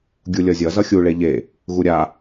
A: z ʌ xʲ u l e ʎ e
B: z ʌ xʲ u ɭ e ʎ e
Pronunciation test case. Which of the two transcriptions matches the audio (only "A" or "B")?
B